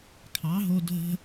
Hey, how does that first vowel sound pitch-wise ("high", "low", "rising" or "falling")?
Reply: rising